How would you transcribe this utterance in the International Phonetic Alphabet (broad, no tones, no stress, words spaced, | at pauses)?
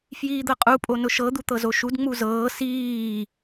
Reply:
fjiːd̪ɤqʼu pʼonʊʃɤ d̪ut̪ɤzoʃud ŋ͡muzɤː siː